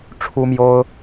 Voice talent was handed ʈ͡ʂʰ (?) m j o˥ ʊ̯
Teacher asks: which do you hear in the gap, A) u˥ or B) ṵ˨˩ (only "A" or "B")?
A